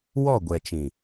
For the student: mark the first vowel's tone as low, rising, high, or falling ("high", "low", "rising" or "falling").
falling